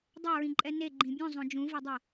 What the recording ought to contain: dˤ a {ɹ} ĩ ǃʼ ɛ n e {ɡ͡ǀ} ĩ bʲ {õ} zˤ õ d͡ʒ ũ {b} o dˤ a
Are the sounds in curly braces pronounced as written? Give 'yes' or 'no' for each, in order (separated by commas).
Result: yes, no, no, no